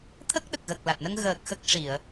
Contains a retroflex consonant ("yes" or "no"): yes